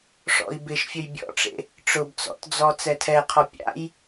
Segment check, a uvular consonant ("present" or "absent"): present